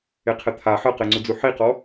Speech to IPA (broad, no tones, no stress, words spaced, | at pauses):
eqʰɛt̪ʰa ħɤqeŋ͡ǀud͡zu ħiqɔ